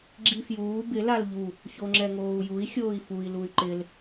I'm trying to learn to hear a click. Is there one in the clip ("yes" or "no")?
yes